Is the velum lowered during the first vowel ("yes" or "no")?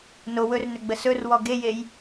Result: no